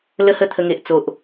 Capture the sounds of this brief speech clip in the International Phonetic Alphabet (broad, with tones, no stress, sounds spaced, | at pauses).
l ə˦ h ə˦ t̪ʰ ə˧ ŋ e˨ ʔ t͡s o˨ ʔ